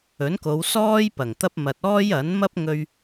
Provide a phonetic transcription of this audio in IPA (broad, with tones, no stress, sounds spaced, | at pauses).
ɵ˨˥ n k o˨˧ w s ɔː˥ j p ɐ˨˩ ŋ t̪ ɐ˥ p̚ m ɐ˨ t̚ ɔː˥ j ɐ˨˥ n m ɐ˥ p̚ ŋ ɵ˧ ɥ